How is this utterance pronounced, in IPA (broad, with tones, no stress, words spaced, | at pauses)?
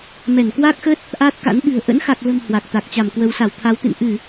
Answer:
mɛ˧˩nkwa˦˥k̚xə˦˥t̚ | ʔaː˦˥t̚ka̰˧˥n ɓɨ̤˨˩ə̯ ʔə̰˧˥nxa˨˩k̚lə̤˨˩m hwa˨˩k̚t̪a˨˩k̚t͡ɕa˧˩mkwə˨˦w sa˧˩wt̪ʰa˨˦wt̪ɨ̰˧˨n ʔɨ˧˩˨